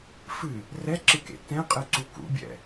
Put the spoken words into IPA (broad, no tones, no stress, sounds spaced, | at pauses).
f ɨ | r ɛ ǁ ɨ k ḛ t ɛ̃ qʼ ɨ ǀ u k ṵ bʲ ɛ̰